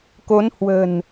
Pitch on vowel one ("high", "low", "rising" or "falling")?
rising